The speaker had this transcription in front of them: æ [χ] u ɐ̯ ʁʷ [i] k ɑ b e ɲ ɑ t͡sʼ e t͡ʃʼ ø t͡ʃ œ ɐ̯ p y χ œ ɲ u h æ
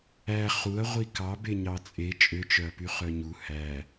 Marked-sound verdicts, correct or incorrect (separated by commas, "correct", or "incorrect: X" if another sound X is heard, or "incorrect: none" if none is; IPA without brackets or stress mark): correct, correct